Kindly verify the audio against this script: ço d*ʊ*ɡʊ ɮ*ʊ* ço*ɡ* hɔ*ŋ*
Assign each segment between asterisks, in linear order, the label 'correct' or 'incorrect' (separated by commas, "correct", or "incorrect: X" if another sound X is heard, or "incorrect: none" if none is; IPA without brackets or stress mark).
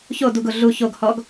incorrect: u, incorrect: u, correct, incorrect: ɡ